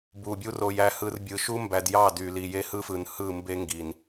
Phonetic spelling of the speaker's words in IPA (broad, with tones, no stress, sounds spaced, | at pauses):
b u˨ bʲ u˦ r o˨ j æ˨ h ɯ˨ r bʲ ɯ˨ ʃ u˦ m b æ˨ d j ɑ˦˨ d y˨ l i˨ j e˦ h ɯ˦ f ɯ˨ n h ɯ˦˨ m b e˦ ŋ ɡ i˨ n